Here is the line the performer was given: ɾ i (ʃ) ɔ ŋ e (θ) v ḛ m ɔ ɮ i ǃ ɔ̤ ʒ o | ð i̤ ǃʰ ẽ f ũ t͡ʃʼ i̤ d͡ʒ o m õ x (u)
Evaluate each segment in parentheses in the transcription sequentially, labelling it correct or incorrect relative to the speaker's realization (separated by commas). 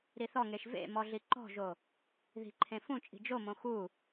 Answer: incorrect, incorrect, correct